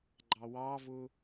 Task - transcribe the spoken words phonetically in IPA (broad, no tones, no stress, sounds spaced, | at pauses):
ɡ͡ǃ ɑ w ɑ v ʊ